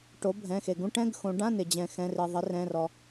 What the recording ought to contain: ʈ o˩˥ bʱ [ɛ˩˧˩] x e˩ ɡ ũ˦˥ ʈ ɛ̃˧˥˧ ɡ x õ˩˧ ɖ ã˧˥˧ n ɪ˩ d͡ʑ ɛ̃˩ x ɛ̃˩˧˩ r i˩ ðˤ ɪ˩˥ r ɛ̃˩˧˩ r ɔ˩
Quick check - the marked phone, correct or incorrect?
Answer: incorrect